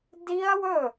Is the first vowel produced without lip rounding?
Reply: yes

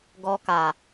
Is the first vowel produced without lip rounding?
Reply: no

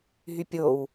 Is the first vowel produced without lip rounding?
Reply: no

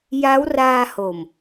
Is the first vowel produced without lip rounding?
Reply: yes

